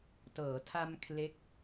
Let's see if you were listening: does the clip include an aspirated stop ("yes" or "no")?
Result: yes